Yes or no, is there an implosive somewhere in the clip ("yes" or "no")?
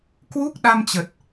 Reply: yes